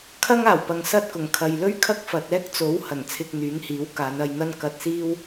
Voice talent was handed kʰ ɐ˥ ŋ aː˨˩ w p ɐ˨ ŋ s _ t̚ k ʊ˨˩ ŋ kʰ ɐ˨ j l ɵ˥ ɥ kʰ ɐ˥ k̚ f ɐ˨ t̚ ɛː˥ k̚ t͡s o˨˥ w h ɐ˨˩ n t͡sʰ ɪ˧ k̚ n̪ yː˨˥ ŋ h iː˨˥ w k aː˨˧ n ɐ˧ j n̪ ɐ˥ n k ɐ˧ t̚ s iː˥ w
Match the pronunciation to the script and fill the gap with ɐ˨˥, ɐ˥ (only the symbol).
ɐ˥